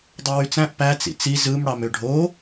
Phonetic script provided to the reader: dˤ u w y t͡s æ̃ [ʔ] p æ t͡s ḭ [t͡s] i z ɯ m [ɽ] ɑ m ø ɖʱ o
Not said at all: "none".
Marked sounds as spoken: ʔ, t͡s, ɽ

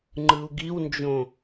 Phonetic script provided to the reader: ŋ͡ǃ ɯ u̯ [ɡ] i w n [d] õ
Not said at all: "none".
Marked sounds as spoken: ɡ, d͡ʒ

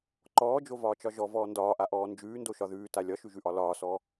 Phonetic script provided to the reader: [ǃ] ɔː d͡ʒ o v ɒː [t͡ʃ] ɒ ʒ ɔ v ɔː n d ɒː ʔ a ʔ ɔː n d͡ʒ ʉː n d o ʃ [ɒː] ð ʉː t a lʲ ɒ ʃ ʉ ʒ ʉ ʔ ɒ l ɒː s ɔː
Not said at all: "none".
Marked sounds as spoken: ǃ, t͡ʃ, ɒ

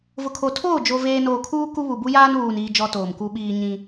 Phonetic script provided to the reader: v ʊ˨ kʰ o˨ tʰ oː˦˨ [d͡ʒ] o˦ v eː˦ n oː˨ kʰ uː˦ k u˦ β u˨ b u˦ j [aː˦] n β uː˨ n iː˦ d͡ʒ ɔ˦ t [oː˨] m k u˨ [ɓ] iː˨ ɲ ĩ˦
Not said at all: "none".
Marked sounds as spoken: d͡ʒ, aː˦, oː˨, ɓ

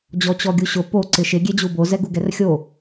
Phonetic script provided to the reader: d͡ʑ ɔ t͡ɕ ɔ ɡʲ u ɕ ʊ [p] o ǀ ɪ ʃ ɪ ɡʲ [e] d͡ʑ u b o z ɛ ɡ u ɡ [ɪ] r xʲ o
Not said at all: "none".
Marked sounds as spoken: p, e, ɛ

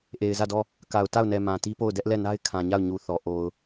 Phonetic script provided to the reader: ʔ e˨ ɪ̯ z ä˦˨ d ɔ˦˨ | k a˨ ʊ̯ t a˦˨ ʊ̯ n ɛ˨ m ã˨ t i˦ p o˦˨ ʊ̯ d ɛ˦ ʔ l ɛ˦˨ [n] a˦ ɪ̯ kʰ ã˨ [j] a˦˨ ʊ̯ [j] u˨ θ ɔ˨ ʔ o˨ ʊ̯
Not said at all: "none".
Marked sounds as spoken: n, ɲ, ɲ

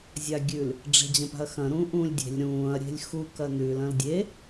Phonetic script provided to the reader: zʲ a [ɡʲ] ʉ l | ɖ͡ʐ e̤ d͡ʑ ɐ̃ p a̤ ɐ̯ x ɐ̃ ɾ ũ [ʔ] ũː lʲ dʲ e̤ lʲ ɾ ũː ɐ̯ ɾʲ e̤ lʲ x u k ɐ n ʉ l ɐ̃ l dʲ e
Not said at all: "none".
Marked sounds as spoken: ɡʲ, ʔ

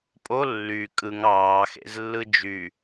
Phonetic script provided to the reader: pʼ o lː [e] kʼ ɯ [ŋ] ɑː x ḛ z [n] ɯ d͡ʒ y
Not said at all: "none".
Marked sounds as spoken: y, ŋ, lː

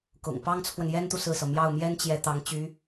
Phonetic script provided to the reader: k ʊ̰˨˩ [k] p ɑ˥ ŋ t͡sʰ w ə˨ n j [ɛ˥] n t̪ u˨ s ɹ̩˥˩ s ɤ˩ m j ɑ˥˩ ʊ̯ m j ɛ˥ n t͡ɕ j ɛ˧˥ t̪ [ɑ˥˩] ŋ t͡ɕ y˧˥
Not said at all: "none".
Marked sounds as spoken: ŋ, ɛ˥, ɑ˧˥

